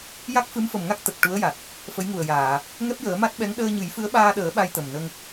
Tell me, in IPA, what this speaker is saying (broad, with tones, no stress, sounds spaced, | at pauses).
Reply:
j a˦˥ k̚ f ɨ˧˥ m f ə˨˩ m ŋ a˦˥ k̚ t̪ ə˨˩ k̚ ʈ u˧˥ ə̯ j a˨˩ t̚ | f ə˧˥ j ŋ u˨˩ ə̯ j aː˨˩˨ | ŋ ɛ˦˥ p̚ j əː˨˩˦ m a˦˥ t̚ ɓ ɛ˧˥ ŋ ɗ əː˧ ɲ ɨ˨˩˦ j f ɨ˧˥ ə̯ ɓ aː˧ ɗ əː˨˩˦ ɓ a˧ j t̪ ə˨˩ m n ə˧ ŋ